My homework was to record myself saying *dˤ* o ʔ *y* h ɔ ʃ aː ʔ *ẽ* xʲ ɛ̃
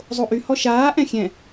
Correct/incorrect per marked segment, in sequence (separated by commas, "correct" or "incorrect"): incorrect, correct, incorrect